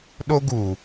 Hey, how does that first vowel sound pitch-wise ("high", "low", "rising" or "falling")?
high